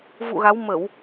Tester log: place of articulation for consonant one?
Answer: labial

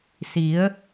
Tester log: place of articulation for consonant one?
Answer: alveolar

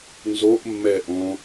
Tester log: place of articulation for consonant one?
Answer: alveolar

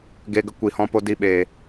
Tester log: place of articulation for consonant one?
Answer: velar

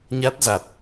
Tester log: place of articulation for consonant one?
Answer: palatal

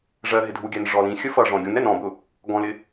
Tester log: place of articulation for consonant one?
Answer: retroflex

